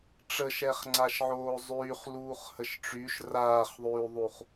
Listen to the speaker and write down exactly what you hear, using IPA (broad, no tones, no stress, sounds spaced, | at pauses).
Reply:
ʈ͡ʂ ə ʃ ɛ χ ŋ͡ǀ a ʃ ʕ oː zˤ yː χ l uː χ h ə ʃ ʈ͡ʂ y ʃ r aː χ ðˤ yː ðˤ u χ